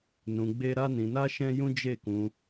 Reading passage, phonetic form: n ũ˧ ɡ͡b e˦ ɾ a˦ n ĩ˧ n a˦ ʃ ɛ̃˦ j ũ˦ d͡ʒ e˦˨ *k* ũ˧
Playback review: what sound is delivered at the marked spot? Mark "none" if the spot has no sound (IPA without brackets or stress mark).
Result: k